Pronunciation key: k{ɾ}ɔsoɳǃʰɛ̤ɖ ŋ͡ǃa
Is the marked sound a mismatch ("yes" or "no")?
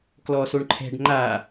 yes